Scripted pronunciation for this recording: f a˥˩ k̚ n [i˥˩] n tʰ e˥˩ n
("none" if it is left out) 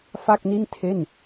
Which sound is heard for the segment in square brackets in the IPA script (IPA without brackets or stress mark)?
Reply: i˥˩